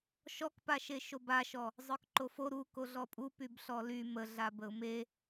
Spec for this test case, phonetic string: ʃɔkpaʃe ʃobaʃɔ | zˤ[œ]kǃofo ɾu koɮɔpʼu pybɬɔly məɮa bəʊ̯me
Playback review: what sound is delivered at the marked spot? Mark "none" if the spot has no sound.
œ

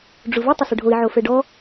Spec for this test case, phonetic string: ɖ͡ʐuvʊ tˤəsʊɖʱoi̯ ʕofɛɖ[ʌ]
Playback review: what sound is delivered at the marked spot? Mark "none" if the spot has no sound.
ɔ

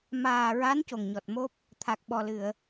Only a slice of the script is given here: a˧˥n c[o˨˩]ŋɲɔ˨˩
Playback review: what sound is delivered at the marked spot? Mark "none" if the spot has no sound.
o˨˩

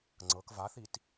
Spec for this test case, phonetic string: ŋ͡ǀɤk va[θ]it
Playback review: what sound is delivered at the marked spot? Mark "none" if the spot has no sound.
θ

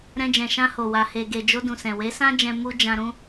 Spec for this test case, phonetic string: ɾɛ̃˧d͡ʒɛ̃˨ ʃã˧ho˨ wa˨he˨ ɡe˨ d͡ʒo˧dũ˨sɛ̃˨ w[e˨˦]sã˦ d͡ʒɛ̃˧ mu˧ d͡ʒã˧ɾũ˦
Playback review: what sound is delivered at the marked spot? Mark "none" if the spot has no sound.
e˨˦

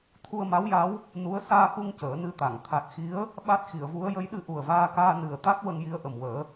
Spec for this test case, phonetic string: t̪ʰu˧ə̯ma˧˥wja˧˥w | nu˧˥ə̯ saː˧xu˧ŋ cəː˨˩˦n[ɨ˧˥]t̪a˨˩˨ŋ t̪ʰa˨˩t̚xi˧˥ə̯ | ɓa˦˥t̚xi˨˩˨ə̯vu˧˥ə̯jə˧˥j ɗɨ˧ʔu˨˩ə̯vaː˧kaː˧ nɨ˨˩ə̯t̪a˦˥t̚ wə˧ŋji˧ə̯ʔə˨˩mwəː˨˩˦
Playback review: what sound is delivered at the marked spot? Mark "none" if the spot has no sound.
ɨ˧˥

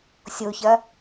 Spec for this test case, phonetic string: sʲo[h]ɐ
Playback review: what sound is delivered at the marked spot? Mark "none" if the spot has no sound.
ç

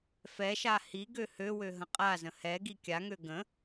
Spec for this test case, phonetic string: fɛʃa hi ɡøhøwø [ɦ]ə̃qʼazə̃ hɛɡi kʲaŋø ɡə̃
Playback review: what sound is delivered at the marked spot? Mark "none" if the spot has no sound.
ɦ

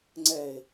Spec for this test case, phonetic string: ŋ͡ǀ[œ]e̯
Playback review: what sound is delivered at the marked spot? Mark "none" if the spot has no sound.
ɛ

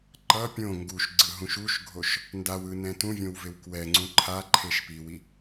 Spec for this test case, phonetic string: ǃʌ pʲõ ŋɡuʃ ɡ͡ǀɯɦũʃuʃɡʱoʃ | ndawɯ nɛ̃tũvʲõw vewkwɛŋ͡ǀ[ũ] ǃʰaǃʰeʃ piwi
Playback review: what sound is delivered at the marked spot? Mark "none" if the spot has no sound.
ũ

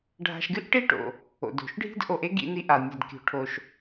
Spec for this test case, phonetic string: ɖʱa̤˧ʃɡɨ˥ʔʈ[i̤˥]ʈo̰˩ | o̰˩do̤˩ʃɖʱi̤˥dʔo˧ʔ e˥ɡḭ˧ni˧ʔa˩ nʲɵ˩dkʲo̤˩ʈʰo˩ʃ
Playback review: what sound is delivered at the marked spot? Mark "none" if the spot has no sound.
i˥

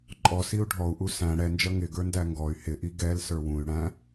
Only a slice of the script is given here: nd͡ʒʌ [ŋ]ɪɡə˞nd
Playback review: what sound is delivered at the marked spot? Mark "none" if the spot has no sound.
ŋ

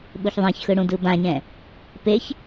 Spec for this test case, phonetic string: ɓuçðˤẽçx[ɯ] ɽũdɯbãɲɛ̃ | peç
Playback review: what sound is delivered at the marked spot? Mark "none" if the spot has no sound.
ɯ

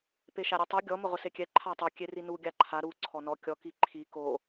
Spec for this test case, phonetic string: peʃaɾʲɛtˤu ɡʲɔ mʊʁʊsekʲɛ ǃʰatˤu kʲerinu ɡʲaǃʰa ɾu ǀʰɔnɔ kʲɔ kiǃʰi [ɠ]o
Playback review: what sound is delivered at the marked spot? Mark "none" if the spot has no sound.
k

